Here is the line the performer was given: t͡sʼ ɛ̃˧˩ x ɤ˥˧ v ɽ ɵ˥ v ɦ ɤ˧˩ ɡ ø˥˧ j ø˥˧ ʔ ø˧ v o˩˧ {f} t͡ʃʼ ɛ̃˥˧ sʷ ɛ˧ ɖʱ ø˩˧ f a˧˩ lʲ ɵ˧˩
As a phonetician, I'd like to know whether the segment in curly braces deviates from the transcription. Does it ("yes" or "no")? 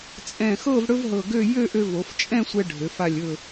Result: no